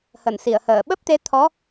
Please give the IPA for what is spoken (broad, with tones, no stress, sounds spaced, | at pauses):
h ə˧˩ n s i˧˩ ə̯ h əː˧˩ ɓ ə˦˥ p̚ t̪ e˨˦ t̪ʰ ɔ˨˦